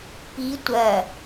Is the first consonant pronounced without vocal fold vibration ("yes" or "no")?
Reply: yes